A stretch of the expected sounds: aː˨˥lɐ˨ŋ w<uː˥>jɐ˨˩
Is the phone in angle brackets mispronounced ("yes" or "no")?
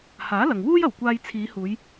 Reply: no